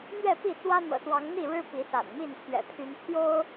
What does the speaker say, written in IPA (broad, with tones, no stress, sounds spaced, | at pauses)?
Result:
n̪ ɥ ɛ˥˨ p i˥˨ t͡s w ä˦ n̪ ɤ̰˨˩ s w ɑ˨˦ ŋ n̪ i˥˨ ɻ ɻ̩˦ p i˨˦ s a̰˨˩ n m i˥˨ n pʰ ɥ ɛ̰˨˩ pʰ y˨˦ n pʰ j o˦ ʊ̯